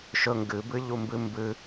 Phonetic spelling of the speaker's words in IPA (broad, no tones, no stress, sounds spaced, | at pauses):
ʃ ɵ ŋ ɡ ɨ b ɨ ʎ u m b ɨ m b ɨ